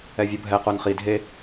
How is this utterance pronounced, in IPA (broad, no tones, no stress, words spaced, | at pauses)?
ɛvʲubʱɛ qonχi dʱe